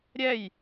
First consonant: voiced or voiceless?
voiced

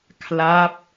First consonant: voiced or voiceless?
voiceless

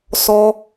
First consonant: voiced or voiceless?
voiceless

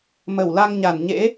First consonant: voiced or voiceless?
voiced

